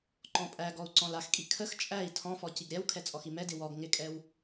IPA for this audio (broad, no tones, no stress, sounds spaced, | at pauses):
ǃ ɔ̃ pʼ æ ɡ ɔ u̯ ǀ ɔ̃ l a x kʼ i kʰ ə x t͡ʃʼ æ i̯ tʰ ɔ̃ f ɔ c i ɡ ɾʲ æ w kʰ ɛ t͡sʼ ɔ x i m ɛ d ɪ w ɔ ɡ ŋ ɪ kʼ ɛ w